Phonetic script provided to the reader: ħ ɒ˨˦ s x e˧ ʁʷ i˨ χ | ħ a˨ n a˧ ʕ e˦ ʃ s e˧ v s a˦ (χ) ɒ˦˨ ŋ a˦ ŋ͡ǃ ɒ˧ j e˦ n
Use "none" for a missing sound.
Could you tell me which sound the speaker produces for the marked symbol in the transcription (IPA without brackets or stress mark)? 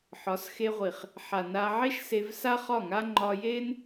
χ